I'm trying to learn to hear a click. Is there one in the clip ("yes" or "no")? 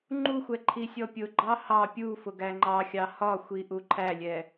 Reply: yes